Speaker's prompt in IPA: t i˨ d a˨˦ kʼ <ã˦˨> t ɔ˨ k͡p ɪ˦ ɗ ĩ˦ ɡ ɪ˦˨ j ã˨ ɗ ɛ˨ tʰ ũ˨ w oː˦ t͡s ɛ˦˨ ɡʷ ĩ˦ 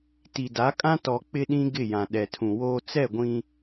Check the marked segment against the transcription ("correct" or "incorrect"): incorrect